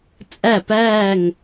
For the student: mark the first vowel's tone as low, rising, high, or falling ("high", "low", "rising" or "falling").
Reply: falling